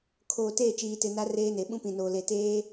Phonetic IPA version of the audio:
kʰ oː˨ t eː˦˨ t͡ʃ iː˨ t ɪ˨ n a˦ r eː˦ n e˨ ɓ ũ˦ p ĩ˨ n oː˨ l e˨ t eː˦

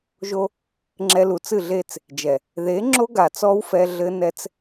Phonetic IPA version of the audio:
ʒ o˦ | ŋ͡ǁ ɛ˧ l u˨ t͡s ɨ˦˨ ɮ e˦˨ t͡s | d͡ʒ ɛ˨ | ð e˨˦ ŋ͡ǁ o˦ ɡ a˨ t͡s ɔ˦ w f ɛ˧ ɮ ɘ˦ n ɛ˦ t͡s

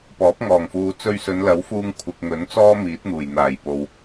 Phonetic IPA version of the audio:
p ɔː˨˥ p̚ ŋ ɔː˨˩ ŋ f uː˨˧ t͡s ɵ˧ ɥ s ɵ˨˧ n l ɐ˨˥ w f uː˧ ŋ kʷʰ ɪ˨ k̚ ŋ ɵ˨˥ n t͡s ɔː˥ m iː˨˥ t̚ n̪ uː˨˩ j n̪ aː˨˩ j p o˨ w

